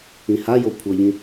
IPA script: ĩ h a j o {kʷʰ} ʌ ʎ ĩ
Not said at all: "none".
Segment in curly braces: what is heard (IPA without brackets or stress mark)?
kʷʰ